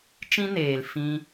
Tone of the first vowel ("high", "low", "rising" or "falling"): high